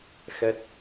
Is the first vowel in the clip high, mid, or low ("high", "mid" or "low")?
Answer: mid